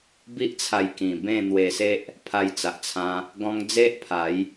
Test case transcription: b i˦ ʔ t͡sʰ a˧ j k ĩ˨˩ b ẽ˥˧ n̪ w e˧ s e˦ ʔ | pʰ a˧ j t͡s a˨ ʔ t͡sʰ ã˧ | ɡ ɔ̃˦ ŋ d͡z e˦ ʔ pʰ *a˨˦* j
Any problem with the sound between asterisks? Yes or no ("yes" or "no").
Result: no